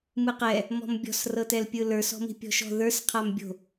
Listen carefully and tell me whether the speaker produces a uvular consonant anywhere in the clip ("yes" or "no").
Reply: yes